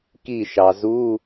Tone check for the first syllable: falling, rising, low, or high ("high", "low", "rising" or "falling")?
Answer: falling